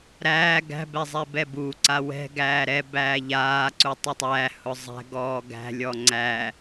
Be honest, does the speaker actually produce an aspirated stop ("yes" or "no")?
no